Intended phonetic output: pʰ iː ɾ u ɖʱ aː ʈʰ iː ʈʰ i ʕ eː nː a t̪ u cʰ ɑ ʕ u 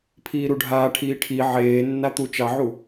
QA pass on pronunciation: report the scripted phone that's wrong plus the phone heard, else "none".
cʰ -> t͡ʃ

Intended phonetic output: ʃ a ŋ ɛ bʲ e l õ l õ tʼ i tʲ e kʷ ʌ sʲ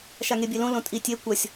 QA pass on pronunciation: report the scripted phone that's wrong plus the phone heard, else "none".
ɛ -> e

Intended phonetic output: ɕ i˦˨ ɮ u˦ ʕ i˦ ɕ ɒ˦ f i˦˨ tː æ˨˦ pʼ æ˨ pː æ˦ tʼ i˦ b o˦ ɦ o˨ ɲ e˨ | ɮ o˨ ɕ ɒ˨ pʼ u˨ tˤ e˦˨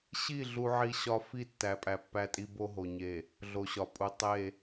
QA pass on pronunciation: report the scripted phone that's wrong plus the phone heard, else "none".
none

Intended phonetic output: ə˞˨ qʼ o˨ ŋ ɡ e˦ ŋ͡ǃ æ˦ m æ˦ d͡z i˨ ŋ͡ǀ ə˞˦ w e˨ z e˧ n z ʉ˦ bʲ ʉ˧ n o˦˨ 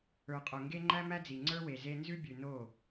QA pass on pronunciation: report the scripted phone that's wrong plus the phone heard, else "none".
none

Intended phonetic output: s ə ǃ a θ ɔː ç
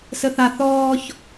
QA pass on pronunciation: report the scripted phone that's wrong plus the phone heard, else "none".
ǃ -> θ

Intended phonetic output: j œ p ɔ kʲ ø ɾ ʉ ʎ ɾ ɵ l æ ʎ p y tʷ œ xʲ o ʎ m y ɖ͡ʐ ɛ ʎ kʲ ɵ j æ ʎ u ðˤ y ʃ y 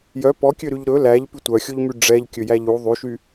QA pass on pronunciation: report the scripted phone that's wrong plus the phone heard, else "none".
none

